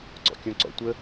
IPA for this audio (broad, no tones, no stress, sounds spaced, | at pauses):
ǀ ɔ̰ kʲ õ ǀ ɔ̰ tʷ ə